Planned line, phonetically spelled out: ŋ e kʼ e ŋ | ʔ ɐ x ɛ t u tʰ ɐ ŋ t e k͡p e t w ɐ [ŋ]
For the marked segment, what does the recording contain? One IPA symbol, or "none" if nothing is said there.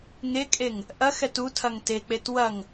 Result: ŋ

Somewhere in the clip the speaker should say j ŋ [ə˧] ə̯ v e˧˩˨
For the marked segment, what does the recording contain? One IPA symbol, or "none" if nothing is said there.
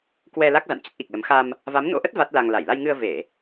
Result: ɨ˧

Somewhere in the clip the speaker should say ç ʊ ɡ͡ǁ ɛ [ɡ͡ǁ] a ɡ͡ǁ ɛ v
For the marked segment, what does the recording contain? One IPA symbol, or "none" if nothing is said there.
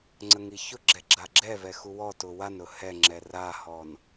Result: ɡ͡ǁ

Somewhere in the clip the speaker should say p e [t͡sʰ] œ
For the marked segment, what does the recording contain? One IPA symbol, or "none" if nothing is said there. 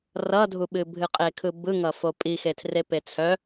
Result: t͡sʰ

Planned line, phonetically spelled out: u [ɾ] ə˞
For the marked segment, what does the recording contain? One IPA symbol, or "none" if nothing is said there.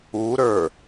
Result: ɾ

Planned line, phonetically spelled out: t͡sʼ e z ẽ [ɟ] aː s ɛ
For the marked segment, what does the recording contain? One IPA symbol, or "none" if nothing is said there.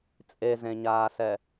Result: ɲ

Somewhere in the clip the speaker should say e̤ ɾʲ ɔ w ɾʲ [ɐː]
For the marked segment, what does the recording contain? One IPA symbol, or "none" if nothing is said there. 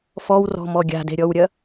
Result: ɐ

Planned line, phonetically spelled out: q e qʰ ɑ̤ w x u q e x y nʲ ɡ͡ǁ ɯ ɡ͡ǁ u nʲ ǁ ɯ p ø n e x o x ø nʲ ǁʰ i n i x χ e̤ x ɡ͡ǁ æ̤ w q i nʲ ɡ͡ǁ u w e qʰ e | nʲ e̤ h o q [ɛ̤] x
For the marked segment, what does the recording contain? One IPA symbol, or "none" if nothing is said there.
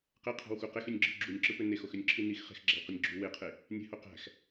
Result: æ̤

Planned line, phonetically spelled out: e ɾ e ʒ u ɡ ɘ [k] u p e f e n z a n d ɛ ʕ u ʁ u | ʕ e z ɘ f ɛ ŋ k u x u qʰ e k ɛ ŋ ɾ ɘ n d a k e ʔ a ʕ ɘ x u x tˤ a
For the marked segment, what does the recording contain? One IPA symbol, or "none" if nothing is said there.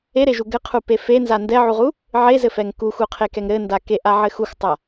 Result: qʰ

